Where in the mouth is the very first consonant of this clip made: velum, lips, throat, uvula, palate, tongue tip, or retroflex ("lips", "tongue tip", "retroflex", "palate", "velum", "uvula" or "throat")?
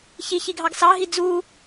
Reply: palate